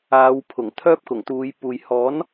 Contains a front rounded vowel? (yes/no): yes